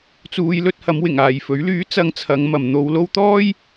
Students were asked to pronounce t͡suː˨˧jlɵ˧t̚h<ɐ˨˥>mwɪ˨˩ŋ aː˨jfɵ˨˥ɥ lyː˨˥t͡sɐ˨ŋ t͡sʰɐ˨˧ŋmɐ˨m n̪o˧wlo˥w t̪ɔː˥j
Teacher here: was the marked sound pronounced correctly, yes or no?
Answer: no